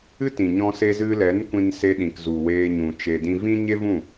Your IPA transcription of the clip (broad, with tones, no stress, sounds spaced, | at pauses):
ɨ˦ t ĩ˨ ɲ ɔ̃˧ s e˧ z ɨ˧ l ɛ˨˦ n kʷ ĩ˧ n s e˧ ɗ ĩ˨ k z u˨ w eː˧ ɲ ũ˨ t͡ʃ e˨ d ĩ˧ v ĩ˦ ɲ e˦ v ũ˦˨